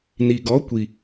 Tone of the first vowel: low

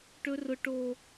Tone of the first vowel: high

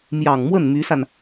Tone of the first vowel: low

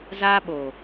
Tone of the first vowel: high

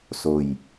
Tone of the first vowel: low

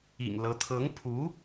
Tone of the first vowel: low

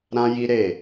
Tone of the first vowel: high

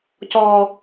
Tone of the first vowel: low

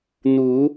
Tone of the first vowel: rising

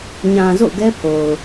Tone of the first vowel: low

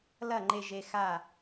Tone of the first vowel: falling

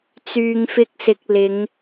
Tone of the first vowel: low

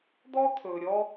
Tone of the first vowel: high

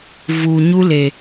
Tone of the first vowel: low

